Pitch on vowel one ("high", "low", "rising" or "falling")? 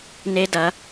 high